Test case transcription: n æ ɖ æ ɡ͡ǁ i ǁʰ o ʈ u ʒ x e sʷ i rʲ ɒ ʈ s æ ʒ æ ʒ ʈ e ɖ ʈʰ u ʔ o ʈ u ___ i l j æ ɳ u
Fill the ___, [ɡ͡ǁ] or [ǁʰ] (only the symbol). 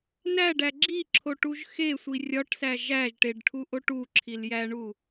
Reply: ǁʰ